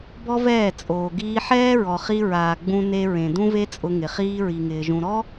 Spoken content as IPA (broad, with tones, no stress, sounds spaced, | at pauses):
b ɔ˦ v ɛː˦˨ t͡sʼ oː˨ ɡ iː˧ ħ ɛː˦ ɹ ɔ˨ χ i˧ ɹ aː˨ ɡ͡b ũ˧ n e˧ ɹ ẽ˨ d ũ˧ v e˧ t͡sʼ ʊ˧ ŋ ɪ˨ χ iː˧ ɹ i˨ ŋ ɪː˨ ʒ ũ˨ ɾ ɔ˦